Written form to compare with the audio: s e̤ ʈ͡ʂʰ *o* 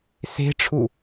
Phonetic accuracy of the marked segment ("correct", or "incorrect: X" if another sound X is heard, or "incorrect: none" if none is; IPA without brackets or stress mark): incorrect: u